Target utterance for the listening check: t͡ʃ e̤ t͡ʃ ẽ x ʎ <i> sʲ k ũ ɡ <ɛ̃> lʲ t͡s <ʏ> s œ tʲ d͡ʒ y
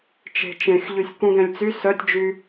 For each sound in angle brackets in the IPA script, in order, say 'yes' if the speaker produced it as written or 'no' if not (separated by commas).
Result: no, yes, no